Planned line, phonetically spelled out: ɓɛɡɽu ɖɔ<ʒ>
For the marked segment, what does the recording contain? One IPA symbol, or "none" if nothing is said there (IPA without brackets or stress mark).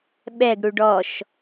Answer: ʃ